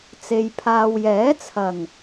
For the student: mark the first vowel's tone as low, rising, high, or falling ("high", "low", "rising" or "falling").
low